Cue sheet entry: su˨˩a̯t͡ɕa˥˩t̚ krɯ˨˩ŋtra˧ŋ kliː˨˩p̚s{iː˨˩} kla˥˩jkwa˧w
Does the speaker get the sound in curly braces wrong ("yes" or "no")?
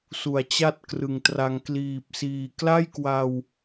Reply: no